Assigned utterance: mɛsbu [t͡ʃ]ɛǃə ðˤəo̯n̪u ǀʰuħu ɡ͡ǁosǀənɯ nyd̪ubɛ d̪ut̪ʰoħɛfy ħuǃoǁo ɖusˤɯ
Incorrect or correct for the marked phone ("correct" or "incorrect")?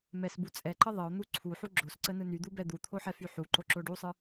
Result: incorrect